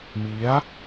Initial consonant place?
labial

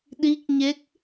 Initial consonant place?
alveolar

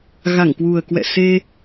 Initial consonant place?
velar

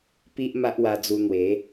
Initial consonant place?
labial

